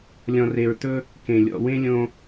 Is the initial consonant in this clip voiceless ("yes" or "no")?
no